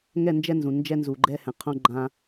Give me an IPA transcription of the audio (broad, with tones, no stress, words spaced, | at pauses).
ŋɛ˦˨nd͡ʒɛ˦nzũ˨nd͡ʒɛ˦ nzu˨ɡ͡ǃɛ˦ hɛ̃˨qʰõ˦ ɡ͡ǃã˦